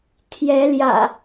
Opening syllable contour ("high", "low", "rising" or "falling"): rising